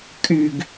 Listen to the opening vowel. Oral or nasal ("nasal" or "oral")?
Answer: oral